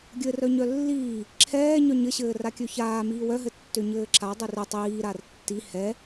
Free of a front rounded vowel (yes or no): no